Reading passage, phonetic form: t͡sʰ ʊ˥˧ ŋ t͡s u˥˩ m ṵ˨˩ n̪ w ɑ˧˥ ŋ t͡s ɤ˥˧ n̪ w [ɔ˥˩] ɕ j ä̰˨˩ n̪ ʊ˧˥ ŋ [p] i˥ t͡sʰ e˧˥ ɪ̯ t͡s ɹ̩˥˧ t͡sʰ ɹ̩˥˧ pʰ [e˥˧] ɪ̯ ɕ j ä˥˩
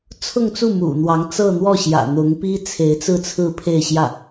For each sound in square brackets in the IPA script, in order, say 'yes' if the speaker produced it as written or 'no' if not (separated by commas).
yes, yes, yes